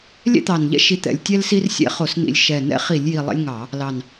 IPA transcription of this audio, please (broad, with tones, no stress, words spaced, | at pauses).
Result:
lʲɛ̰˦t̪ɑ˨˩nʎɛ̰˦ ʃi˨˦t̪ɛ̰˨˩lʲtʲɛ˦l si˦rsʲɛ̰˦χo˧˩˧s nḭ˨˩lʲ ʃɛ˨˩ nɛ̰˦χi˧˩˧lʲji˨˩ lˠɛ̰˦lʲŋɑ˧˩˧ | lɑ˨˩n